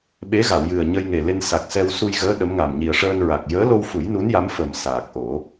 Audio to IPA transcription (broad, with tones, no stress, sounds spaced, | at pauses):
ɓ e˧˥ ɣ a˨˩˨ w j ɨ˨˩ ə̯ ɲ ə˧ j ŋ e˨˩ l e˧ n s a˨˩ k̚ s ɛ˧ w s u˧ j ɣ əː˧˥ ɗ ə˧˥ m ŋ a˨˩ m ɲ i˨˩ ə̯ ʂ əː˧ n ɹ a˨˩ k̚ j əː˧˥ l o˧ w f u˨˩˦ j n u˧˥ n j a˧˥ m f ə˨˩ m s aː˨˩ k̚ ʔ o˨˩˦